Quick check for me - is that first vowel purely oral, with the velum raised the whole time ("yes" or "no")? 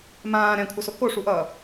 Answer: no